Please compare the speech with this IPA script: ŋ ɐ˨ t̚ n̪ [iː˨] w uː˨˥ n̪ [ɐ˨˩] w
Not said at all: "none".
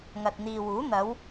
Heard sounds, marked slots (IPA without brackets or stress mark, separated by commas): iː˨, ɐ˨˧